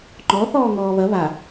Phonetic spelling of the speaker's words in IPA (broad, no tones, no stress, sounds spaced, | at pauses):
ŋ͡ǃ ɔ θ ɔː ŋ ɔː β ɐ β a